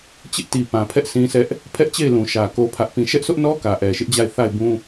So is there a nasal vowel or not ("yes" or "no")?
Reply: yes